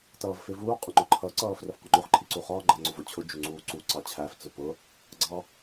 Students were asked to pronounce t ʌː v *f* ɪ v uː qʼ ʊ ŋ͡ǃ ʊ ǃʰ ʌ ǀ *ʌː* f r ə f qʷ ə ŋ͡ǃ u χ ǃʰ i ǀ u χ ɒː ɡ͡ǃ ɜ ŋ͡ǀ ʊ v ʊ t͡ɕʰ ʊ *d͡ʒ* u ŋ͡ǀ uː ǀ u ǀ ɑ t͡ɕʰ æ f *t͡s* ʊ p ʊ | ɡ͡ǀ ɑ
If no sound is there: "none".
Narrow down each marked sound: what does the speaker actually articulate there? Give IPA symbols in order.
f, ʌː, d͡ʒ, t͡s

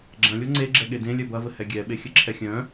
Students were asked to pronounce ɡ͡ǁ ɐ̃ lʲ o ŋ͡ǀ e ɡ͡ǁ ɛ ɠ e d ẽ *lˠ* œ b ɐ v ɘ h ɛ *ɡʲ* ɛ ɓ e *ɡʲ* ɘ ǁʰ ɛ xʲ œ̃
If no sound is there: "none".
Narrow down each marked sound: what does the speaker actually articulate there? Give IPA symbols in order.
lʲ, ɡʲ, xʲ

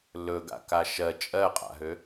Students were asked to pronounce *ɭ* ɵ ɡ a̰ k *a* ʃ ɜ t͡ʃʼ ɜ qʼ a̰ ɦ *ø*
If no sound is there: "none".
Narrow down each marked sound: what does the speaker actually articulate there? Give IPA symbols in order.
l, a, ø

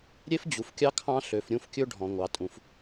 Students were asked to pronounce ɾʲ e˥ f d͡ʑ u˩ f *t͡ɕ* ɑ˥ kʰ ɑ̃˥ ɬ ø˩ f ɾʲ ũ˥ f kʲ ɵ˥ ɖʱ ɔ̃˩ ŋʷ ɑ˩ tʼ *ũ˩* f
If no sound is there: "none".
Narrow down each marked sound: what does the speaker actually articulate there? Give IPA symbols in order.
kʲ, ũ˩

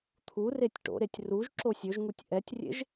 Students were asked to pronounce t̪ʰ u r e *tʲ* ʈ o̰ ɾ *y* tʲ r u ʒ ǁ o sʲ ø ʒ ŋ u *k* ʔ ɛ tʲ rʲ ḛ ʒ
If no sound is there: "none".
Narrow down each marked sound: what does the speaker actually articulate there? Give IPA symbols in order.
tʲ, e, tʲ

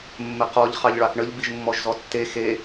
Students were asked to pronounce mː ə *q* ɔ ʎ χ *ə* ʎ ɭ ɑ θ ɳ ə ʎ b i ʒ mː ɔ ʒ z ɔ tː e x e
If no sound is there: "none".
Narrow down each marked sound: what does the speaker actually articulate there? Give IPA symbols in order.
q, ɑ

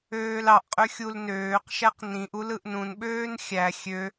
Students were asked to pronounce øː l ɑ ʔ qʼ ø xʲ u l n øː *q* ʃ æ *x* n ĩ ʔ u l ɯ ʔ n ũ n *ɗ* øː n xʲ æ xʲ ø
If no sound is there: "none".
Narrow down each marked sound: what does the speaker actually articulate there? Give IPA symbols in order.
q, q, ɓ

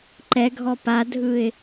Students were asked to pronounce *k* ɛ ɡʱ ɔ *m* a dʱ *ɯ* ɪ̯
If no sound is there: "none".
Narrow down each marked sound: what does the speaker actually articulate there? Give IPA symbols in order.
ǃ, p, ɯ

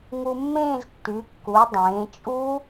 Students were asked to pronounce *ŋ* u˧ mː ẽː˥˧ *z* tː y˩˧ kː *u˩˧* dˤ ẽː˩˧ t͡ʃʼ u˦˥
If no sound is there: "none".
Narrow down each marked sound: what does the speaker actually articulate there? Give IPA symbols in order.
ŋ, z, u˩˧

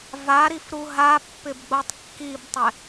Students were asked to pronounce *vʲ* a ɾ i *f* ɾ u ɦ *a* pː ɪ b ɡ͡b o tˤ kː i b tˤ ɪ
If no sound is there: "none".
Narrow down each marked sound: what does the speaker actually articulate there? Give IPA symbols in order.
v, f, a

